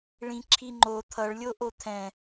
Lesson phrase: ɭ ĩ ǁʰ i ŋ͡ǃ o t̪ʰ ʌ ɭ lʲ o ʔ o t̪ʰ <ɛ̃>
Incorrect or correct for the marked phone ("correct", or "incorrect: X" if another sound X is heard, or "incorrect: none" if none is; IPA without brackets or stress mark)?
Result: correct